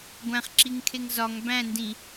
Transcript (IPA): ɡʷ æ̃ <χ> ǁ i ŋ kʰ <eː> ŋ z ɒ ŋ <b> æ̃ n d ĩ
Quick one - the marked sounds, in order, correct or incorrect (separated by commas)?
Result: correct, incorrect, correct